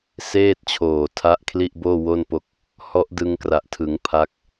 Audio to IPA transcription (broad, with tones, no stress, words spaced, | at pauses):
seː˥˩t̚t͡ɕʰoː˨˩ tʰa˦˥ʔkʰli˥˩ʔboː˥˩ wo˥˩npo˦˥k̚ | hɔ˦˥ʔdɯ˧ŋkra˨˩ʔtʰɯ˩˦ŋ pʰa˦˥k̚